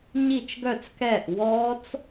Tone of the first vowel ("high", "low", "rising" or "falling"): falling